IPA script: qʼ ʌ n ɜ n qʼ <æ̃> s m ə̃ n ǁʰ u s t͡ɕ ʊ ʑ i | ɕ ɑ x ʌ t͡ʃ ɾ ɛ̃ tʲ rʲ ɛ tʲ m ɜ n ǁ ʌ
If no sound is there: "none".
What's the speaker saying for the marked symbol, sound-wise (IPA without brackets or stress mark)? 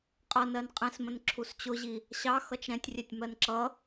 ɛ̃